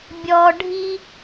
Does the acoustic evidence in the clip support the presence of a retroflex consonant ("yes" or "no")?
yes